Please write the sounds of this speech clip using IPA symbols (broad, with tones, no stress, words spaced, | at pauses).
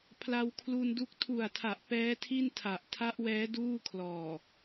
pʰla˧wkʰlu˧ndu˦˥k̚ tʰu˨˩a̯tʰa˨˩ʔ pɛː˦˥tʰi˥˩n tʰa˨˩ʔ tʰa˦˥ʔwɛː˦˥ duː˥˩kʰlɔː˨˩